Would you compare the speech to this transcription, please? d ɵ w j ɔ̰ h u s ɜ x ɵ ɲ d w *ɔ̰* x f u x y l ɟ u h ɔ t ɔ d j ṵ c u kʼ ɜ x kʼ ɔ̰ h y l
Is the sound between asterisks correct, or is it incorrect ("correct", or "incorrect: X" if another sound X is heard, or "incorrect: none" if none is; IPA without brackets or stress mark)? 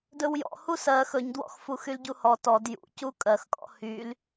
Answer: correct